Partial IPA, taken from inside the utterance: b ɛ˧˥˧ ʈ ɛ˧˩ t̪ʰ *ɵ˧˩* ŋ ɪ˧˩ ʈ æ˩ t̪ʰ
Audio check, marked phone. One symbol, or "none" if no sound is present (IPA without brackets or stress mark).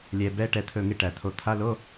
ɵ˧˩